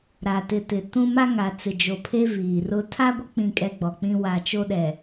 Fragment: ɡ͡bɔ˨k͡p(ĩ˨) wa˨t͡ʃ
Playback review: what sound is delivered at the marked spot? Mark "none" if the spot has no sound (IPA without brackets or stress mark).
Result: ĩ˦